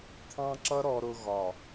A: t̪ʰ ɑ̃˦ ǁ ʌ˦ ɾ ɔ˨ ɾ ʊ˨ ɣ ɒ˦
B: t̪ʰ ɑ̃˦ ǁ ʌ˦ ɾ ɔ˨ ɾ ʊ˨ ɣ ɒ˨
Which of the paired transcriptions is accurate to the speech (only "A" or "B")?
B